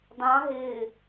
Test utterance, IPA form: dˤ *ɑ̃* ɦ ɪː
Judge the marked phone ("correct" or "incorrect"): correct